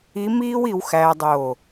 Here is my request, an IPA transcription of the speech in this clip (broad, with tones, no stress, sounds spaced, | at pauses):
i˧˥ m iː˥ w i˧ w x æː˧ dˤ oː˧˩